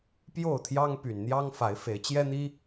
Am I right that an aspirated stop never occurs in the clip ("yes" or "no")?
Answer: no